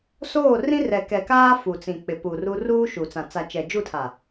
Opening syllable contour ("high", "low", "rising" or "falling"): falling